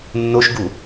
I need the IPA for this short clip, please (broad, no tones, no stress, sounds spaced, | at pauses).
nː o ʃ ɡ u